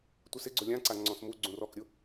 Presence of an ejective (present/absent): absent